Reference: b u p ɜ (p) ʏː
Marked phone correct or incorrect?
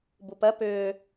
correct